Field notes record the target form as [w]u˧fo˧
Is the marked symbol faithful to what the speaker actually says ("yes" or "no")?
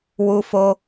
yes